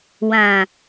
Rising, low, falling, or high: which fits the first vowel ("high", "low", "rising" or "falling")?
low